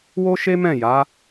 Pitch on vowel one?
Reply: high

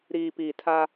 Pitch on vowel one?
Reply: low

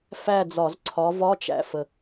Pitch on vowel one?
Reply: falling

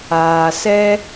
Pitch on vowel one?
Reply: low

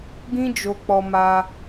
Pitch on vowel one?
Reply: high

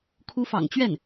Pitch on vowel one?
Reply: rising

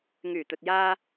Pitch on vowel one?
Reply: low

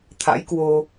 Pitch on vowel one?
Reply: rising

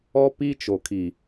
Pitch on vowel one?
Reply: high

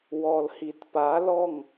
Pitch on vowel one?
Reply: low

